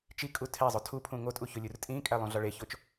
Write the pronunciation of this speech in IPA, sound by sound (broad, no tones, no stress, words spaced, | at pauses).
t͡ʃi kʼutʰezˤo tʰupʰũ ŋotʼu çolʲurtʼĩkʼæ lˠũɮɒɭeçot͡ʃ